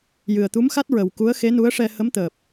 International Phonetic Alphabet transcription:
jɨ˨˩ə̯t̪u˧˥mxa˦˥t̚ ɹə˨˩wku˧˥ə̯ xe˧˥ nu˧˥ə̯ʂɛ˧ hə˧˥mt̪əː˨˩p̚

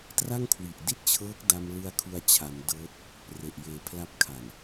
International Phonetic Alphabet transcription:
tra˥˩ŋkʰwi˨˩ʔdi˥˩t̚t͡ɕʰɤː˦˥k̚ da˧mlɯ˧a̯ kʰu˧a̯t͡ɕʰa˩˦mdɤː˦˥t̚ | re˨˩ʔjeː˨˩pʰla˥˩p̚ kʰa˨˩n

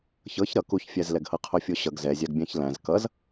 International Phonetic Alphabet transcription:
çɤç ɾʌ kuçfʲæzlɛɡhɤ qʰofʲoɕʌɡ zɛzʲaɡbʲæ̃ç læ̃z kʌz

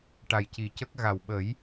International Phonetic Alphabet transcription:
ʈa˨˩jci˨˩cə˦˥k̚ ɣa˨˩wɓə˨˩˦j

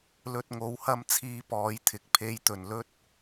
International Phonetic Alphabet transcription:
lɵ˧t̚ŋo˨˥whɐ˥m t͡sʰiː˧pɔː˨˧jt̪ʰɪ˨˥k̚ pʰe˧j t̪ɵ˨˩nlɵ˥t̚

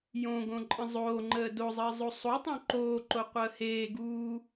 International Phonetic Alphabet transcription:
jõɡõ ǃʼə̃zˤoːŋ͡ǃəː dozˤəː zˤosˤotˤõ ǃoːǃo qʷəːheːɡuː

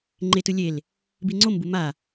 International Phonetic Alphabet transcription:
ŋ͡ǃetɯ lʲel | biŋ͡ǀombu ma

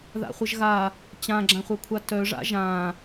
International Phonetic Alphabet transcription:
ða̰χʷəʒɣa | t͡ɕãɡ͡ǁãχʷɐkʷʰa tœʐa̰ ʒã

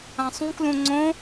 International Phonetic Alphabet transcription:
ãsˤũklũ ŋ͡ǀõ

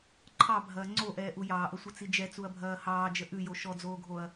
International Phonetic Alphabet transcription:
ǃʰɑbʱɐː ŋ͡ǀoʔɛːʔu jɑːʔəsʷət͡si d͡ʒɛt͡suɐ̯bʱɐː hɑːd͡ʒə ʔʉjo ʃɔd͡zoːɡʱoɐ̯

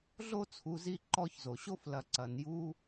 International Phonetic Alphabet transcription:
ɮo˥t͡sʰu˨zi˦ ǃɔ˦çzo˩ ɕo˥flɐ˨ ǀɐ˩nju˦

